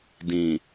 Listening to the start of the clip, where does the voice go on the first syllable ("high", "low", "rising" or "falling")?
low